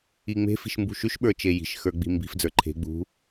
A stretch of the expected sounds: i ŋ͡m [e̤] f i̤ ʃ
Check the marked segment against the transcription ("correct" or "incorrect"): correct